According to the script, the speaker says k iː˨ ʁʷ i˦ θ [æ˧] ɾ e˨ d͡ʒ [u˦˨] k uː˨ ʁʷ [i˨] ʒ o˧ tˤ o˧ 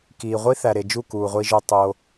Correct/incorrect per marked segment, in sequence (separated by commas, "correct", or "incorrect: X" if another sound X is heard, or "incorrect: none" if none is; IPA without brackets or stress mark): incorrect: æ˨, correct, incorrect: i˧